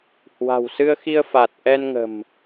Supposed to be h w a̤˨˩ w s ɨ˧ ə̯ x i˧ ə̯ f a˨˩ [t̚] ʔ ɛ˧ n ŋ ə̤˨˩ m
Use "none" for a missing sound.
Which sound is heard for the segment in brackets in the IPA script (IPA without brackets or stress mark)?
t̚